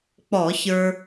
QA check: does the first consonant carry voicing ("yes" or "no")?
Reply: no